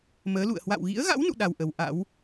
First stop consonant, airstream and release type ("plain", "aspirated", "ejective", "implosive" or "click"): implosive